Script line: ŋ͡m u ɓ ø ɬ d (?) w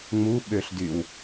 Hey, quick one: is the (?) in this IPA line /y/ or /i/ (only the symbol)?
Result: y